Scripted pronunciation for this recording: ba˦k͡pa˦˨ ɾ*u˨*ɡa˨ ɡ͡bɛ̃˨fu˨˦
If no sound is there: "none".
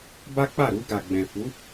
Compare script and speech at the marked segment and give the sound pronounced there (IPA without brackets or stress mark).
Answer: u˧